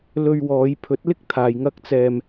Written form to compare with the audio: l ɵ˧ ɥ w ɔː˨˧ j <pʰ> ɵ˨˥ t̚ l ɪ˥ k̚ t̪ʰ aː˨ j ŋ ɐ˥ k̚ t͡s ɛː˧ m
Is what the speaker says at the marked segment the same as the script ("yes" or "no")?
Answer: yes